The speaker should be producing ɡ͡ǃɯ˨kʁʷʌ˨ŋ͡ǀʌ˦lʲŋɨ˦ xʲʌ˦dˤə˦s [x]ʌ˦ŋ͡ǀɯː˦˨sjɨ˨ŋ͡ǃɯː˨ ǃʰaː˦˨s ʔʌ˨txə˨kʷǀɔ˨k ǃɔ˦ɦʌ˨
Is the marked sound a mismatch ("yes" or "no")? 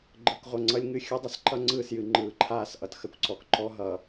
yes